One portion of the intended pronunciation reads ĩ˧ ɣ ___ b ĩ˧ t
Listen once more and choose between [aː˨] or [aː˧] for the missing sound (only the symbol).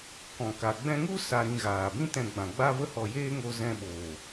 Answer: aː˨